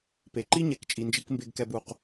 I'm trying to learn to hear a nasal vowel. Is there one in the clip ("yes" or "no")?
no